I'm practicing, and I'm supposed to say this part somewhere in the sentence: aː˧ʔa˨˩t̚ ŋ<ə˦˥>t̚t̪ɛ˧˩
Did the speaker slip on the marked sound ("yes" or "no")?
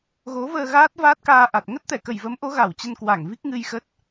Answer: no